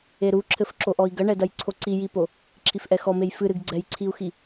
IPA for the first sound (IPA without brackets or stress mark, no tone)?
e